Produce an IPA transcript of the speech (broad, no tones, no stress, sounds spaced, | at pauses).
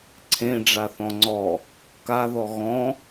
ǀʰ ẽ ɖ͡ʐ a θ ɔ̃ ŋ͡ǀ ɔ | k a ð ɔ ɣ ɔ̃